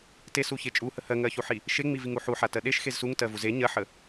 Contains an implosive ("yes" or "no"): yes